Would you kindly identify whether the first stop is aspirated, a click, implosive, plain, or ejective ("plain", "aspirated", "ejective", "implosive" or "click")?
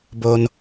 plain